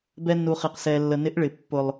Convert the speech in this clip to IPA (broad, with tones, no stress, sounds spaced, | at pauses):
b ɛ˧ nː u˨ χ i˨ q s ɛ˨ lː ə˨ n ɪ˨˦ ʔ ɭ ɪ˨ pː ʊ˨ lˠ